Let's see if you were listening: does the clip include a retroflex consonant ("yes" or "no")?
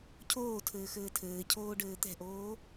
yes